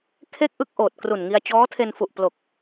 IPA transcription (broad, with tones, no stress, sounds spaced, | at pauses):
kʰ e˥˩ k̚ ʔ ɯ˥˩ k̚ ʔ oː˨˩ t̚ k r u˨˩ n ŋ i˧ a̯ t͡ɕ ɔː˦˥ tʰ e˧ n f u˨˩ ʔ p l o˨˩ k̚